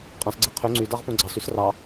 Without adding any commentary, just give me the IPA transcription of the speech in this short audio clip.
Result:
qʼɑ̃sɡ͡ǀɛ qʰø ŋ͡ǀydɑʁpõ ɡ͡ǀɑsys rɑ

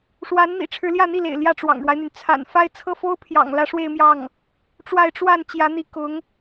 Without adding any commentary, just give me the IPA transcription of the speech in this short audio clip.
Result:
ʂwa˧˥nn̪ḭ˨˩ ʈ͡ʂʰɻ̩˧˥ljä˥˧n̪i˥˩lḛ˨˩ɪ̯ ljä˥˩ʈ͡ʂwɑ̰˨˩ŋɻwa˦ɪ̯n̪y˩n t͡sʰa̰˨˩nfa˥˧ɪ̯ t͡sʰɤ˥˩fo˥ʊ̯pʰjɑ̰˨˩ŋ lä˧˥ʂwe˥˧ɪ̯mjɑ˥˩ŋ | ʈ͡ʂwa˥˧ɪ̯ ʈ͡ʂwa˥˩n t͡ɕjä˧˥n̪i˧˥ kʊ˧˥ŋ

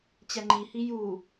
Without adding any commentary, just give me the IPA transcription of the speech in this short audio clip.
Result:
t͡ɕɛŋ͡ǃihi ju

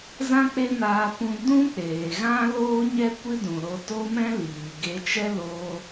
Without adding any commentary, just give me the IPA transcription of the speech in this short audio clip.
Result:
zã˦k͡pe˦naː˧ pũ˦ dũ˦k͡peː˨ ɣã˦loː˦ɲɛ˦ kʷɨ˦dũ˨ɾo˧ to˦mɛ̃˦ liː˨ ɡe˧t͡ʃɛ˦loː˧

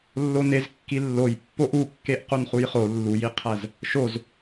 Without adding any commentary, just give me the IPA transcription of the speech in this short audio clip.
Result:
lːonez kːilːoj pːoʔukːeʔ qonχujχo lːujiqʰæz | ʃoz

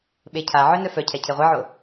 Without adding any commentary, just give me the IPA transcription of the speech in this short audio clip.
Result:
ɓecʰaʕœ nœfœcʰɛ cʰeʁʷeʕo

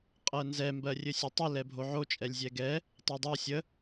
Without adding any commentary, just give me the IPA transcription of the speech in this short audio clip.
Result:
qʼɜnzɛ mbɜrʲɘsʲøtˤə lɛbʱoʕo t͡ʃʼɛlʲzʲɛɡɛ | tˤɜdˤo sʲə

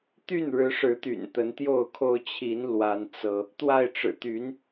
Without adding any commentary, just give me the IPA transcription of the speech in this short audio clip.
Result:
t̪y˥˨nɻɻ̩˨˦ʂɻ̩˨˦t̪y̰˨˩n t̪ə˨˦nt̪jo˥˨ʊ̯kʰo˦ʊ̯ t͡ɕʰi˨˦n lwa˦nt͡sɤ˦ | t̪wa˥˨ɪ̯ʈ͡ʂɻ̩˨˩ t̪y˨˦n

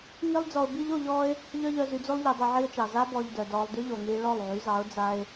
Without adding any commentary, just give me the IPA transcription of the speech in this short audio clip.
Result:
ŋi˦lˠd͡zɔ˧ʊ̯ bi˦ʎo˧ ʎɔː˦ɪ̯ | ʎœ˦ʎœ˧zy˧d͡zo˦lˠ ʎi˧dˤi˧ʕi˦ʊ̯t͡ʃɑ˨ za˧bɔ˨ʎ dœ˨dɔː˧lˠ dy˦ʎo˨ŋiː˧ ɭɔ˦˨lˠʕy˨˦zɑ˨˦ʊ̯ d͡za˦ɪ̯

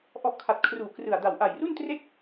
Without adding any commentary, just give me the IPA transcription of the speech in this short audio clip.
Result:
ʔɔ˦˥ʔkʰa˨˩t̚ kʰruː˨˩ krɯ˨˩a̯da˨˩w ʔa˨˩jru˥˩n tre˥˩k̚

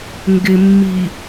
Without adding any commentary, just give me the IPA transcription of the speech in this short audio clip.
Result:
ŋɡɪmːi

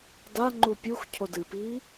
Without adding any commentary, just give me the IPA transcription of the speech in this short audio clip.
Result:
daŋ͡ǃu pʲux cʰodɨpiː

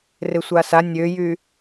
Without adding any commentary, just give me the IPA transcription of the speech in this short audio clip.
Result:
rɪsʷasa nʲøjy

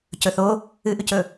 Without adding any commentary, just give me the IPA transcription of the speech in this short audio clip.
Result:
cɵθo | ɨʔʉcɵ

